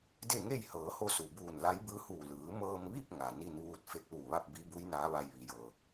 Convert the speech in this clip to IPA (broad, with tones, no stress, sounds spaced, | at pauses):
d e˥˨ ŋ e˥˨ j h ɤː˩˧ h o˧ s u˩ b uː˧˩ n l a˧˥ j b ɯː˧˥ h uː˧˩ l ɯː˩˧ m ɤː˧ m ʋ i˥˨ p̚ ŋ a˩ n i˧ n ʋ uː˧ t̚ f e˧˥ k̚ l uː˧˩ ʋ a˥˨ p̚ b i˧˥ b u˧˥ j n aː˧˥ ʋ a˧ j ʋ i˩˧ j ɤː˩